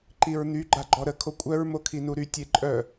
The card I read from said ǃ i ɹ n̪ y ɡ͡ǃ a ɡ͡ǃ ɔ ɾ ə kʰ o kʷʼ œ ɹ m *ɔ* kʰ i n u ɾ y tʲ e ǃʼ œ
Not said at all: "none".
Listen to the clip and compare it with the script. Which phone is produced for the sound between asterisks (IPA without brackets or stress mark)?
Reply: o